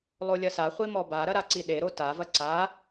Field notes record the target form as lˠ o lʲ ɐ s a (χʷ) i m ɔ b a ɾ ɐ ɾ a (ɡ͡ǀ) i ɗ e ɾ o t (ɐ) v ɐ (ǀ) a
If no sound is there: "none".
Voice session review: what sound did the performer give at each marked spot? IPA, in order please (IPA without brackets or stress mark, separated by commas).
χʷ, ǀ, a, ǀ